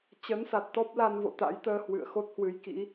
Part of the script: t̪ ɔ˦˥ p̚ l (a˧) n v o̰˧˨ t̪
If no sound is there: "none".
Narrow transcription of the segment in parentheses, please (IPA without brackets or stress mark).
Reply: a˧